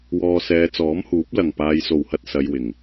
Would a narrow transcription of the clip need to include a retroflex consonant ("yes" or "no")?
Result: no